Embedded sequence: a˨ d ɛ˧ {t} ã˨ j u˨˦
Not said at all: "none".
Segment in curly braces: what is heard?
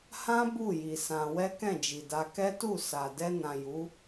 n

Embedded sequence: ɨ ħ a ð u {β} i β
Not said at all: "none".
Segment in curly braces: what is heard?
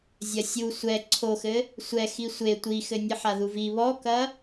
v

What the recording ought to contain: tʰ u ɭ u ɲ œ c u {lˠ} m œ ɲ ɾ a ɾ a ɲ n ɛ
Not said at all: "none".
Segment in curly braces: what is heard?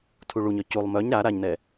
lˠ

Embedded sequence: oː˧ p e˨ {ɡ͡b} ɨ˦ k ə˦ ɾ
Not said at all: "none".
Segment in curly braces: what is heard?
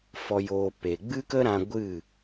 ɡ͡b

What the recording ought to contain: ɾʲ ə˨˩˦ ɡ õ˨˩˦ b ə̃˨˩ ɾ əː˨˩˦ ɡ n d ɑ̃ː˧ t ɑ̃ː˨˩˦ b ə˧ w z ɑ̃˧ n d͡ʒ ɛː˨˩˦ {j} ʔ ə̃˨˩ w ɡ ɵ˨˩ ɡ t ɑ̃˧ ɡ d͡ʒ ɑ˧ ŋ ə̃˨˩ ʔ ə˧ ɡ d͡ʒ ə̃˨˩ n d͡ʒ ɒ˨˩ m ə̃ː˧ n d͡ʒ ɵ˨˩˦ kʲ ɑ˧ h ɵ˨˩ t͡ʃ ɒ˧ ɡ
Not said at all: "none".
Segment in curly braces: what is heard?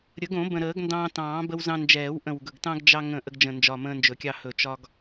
w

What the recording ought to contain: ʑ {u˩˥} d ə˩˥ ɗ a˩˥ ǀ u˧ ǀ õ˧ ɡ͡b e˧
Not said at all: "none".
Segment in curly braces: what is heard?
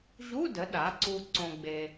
u˧˥˧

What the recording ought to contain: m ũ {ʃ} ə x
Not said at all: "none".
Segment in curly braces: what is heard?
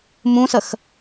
s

